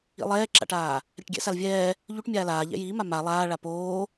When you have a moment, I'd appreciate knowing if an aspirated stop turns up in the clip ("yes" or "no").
no